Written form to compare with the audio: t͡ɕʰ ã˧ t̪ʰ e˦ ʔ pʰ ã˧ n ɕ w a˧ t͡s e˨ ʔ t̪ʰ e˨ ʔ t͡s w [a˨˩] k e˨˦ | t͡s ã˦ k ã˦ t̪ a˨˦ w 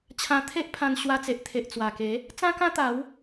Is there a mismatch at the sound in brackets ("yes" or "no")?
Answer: no